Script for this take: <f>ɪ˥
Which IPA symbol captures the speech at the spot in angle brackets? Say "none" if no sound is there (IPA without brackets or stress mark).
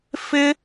f